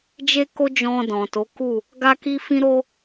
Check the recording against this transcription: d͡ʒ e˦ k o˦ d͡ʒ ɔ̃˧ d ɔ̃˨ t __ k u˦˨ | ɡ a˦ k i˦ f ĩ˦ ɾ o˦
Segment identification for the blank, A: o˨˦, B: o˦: A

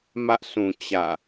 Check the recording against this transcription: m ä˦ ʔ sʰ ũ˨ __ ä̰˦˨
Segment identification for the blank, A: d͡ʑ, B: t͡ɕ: B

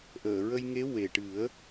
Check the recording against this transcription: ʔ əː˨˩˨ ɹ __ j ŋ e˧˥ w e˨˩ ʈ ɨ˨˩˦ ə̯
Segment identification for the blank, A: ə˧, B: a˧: A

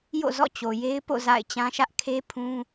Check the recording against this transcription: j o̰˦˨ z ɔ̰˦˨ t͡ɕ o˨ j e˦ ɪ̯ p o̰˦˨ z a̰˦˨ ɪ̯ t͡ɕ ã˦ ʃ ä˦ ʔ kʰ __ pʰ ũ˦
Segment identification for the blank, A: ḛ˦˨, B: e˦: B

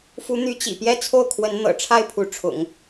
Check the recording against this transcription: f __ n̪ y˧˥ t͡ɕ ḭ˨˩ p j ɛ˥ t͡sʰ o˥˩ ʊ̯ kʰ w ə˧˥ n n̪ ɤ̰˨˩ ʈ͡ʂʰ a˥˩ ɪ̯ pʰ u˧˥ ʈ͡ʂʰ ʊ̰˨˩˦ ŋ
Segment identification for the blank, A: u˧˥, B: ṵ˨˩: A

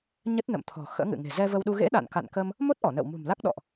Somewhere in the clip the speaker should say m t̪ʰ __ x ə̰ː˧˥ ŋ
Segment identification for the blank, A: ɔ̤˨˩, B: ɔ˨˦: A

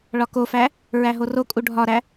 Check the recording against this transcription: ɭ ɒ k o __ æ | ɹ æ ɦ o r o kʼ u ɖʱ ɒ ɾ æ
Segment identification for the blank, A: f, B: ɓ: A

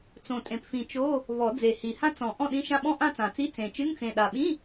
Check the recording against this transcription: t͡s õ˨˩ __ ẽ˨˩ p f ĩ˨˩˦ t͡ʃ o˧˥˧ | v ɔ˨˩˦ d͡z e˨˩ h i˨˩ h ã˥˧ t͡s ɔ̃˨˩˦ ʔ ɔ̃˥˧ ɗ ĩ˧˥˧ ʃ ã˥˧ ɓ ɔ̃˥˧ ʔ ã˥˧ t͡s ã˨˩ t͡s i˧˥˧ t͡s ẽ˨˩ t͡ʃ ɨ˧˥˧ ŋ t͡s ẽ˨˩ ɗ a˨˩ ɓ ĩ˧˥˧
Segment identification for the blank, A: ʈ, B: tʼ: B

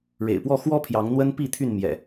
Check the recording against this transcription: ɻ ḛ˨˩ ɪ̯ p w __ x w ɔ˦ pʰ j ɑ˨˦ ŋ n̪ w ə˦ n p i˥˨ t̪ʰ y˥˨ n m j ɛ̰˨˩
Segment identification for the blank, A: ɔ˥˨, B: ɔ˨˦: A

